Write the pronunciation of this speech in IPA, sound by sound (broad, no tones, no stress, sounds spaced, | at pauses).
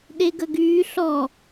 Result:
ɗ e ɡ ə ɡ yː ɬ ɔ